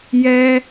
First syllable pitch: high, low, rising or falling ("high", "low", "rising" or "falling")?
high